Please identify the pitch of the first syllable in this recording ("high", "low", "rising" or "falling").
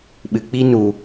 low